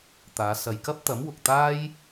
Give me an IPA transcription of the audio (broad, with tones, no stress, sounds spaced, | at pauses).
t̪ aː˨˧ s ɐ˨ j k ɐ˥ p̚ t̪ ɐ˨˥ m w ʊ˨ k̚ t̪ aː˥ j